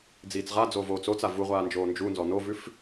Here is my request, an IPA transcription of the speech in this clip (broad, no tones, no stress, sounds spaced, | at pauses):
d͡z iː t͡s ʁ a d͡z o v oː t͡s o t͡s a v u ʁʷ aː n d͡ʒ oː n d͡ʒ u n z ɔ n o v ʉ f